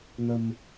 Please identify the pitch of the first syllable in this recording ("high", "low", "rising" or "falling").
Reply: low